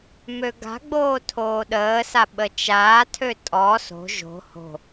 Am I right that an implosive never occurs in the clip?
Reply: no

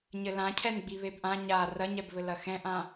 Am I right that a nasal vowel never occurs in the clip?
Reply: no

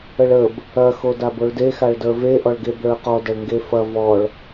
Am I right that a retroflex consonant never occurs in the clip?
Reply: no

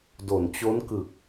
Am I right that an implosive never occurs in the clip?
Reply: yes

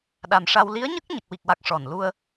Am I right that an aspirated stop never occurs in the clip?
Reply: yes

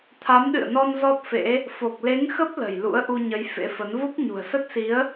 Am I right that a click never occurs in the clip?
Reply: yes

